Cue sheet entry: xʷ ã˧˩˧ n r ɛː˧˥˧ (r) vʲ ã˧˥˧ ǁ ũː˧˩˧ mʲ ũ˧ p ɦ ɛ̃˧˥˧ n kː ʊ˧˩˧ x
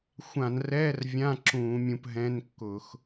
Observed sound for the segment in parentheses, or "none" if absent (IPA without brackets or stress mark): r